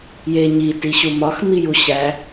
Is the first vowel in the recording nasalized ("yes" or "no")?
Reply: no